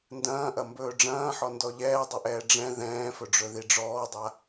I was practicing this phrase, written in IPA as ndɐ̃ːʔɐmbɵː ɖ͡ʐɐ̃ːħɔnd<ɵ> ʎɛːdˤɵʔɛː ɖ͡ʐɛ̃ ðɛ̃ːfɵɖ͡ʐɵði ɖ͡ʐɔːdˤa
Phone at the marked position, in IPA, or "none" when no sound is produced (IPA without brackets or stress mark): ɔ